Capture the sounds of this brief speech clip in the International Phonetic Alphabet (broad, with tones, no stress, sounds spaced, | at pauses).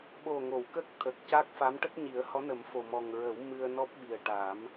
ɓ o˨˩ ŋ o˨˩˨ w k ə˦˥ k̚ t̪ʰ ə˨˩ k̚ c a˦˥ k̚ f a˧˥ m ʈ ə˦˥ k̚ ɲ i˨˩˦ ə̯ h ɔ˧˥ n ə˨˩˦ m f o˨˩ m ɔ˨˩ ŋ ɹ ə˨˩˦ w m ɨ˧ ə̯ n ɔ˦˥ p̚ ɓ i˨˩ ə̯ ʈ a˨˩˦ m